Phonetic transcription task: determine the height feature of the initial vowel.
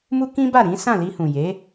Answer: high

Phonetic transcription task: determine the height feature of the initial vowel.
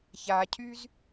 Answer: low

